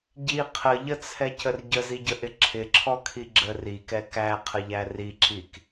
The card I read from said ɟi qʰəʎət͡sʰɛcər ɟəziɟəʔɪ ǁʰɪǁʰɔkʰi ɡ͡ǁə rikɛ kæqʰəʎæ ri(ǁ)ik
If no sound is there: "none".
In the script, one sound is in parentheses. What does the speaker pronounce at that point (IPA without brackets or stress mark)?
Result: ǁ